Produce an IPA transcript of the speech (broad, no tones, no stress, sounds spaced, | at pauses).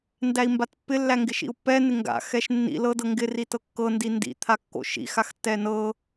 n d æ i̯ m b a t pː ɪ lː æ ŋ ɡ ɪ ʃ ḭ u̯ pː ɛ n ɪ ŋ ɡ a̰ x ɛ ʃ nː ḭ l ɤ d ɤ ŋ ɡ ɪ r i t ɤ kː ɤ n d i n d ḭ t̪ʰ a kː o̰ ʃ ḭ x a x tː ɛ n ɤ